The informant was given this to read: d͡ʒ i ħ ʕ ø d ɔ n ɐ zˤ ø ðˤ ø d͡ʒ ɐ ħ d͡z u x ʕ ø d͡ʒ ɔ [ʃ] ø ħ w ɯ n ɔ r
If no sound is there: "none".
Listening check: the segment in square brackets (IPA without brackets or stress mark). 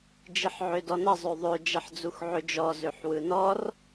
z